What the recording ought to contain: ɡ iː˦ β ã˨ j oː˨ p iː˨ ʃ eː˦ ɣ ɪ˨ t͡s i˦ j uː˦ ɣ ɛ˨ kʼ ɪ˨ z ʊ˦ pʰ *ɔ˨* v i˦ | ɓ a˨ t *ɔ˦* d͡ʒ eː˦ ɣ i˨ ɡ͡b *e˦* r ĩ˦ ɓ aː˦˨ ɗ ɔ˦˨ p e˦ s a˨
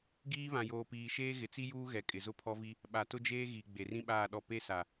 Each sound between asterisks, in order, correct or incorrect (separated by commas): incorrect, incorrect, incorrect